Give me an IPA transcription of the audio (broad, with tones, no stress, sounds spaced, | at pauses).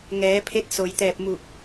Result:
ŋ ɛː˩˧ pʰ e˧˥ t̚ s o˩ j t̪ ɛː˧˩ p̚ m u˧˩ k̚